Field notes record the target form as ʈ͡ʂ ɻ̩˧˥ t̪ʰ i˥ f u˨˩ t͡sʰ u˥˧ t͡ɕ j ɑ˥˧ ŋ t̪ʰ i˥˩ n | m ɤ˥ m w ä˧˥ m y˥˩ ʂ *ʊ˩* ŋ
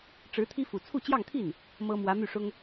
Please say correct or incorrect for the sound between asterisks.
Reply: incorrect